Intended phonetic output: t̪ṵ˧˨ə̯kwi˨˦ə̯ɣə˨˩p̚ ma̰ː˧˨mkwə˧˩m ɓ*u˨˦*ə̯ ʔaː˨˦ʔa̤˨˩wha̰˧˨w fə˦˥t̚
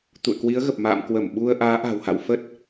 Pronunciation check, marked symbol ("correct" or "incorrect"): incorrect